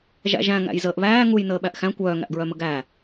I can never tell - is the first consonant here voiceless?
no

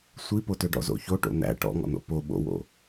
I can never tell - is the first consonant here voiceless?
yes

